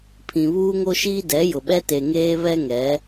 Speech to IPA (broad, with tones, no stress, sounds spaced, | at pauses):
pʰ ĩ˨ β uː˦ ŋ o˦ ʃ iː˦ d ɛ˨˦ j ʊ˨ ɓ ɛ˦ t e˨ ŋ eː˦ β ɛ˦ ŋ ɛ˨˦